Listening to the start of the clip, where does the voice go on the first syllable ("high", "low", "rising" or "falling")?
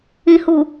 low